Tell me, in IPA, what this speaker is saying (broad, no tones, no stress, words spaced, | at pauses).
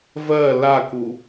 vɜ laku